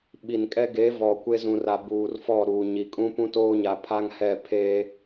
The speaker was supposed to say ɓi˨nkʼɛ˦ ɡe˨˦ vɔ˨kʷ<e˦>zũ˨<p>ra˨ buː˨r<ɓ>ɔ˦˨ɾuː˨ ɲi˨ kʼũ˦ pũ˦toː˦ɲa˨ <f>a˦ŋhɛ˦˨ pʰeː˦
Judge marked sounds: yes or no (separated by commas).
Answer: yes, no, no, no